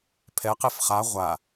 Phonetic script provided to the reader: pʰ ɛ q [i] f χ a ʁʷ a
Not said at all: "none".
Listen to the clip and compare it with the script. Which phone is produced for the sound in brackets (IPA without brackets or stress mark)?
e